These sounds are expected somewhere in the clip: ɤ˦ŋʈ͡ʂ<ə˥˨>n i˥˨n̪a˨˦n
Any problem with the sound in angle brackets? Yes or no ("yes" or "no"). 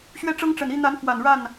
yes